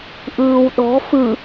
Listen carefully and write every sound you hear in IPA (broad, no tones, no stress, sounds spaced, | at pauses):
ʔ ɯː w ɗ ɔ̤ f ɯ